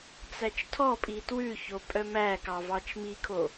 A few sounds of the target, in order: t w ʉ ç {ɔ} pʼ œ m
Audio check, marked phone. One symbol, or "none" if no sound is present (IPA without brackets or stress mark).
o